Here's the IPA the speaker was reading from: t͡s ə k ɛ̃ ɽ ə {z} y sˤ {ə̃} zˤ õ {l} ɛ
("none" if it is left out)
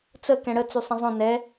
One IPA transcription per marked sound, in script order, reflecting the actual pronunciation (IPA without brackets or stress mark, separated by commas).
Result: t͡s, ə̃, n